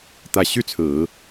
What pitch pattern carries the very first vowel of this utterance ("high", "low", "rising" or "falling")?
low